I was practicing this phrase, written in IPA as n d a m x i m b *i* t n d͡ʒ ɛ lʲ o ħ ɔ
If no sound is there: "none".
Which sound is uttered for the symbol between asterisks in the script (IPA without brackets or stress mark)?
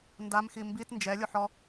i